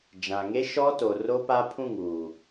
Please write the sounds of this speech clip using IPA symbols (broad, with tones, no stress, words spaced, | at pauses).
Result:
d͡ʒã˨ŋe˦ ʃɔ˦to˨ ro˦pa˦pʰũ˦˨ŋuː˨